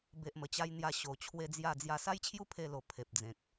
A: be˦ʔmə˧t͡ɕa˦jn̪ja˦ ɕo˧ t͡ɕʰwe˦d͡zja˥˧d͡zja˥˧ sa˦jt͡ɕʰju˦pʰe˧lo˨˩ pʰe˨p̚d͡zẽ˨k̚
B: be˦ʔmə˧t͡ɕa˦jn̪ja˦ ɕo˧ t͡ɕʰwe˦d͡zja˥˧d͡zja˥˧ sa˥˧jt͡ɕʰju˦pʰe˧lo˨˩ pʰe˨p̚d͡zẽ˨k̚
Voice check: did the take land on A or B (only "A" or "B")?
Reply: A